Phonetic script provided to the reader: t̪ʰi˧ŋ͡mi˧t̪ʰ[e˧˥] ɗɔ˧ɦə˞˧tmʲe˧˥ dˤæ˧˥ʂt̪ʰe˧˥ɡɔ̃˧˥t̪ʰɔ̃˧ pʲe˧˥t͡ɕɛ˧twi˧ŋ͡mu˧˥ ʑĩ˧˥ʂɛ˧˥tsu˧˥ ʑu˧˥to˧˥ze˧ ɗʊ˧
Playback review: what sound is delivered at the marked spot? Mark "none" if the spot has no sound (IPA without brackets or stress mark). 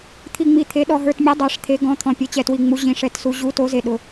e˧˥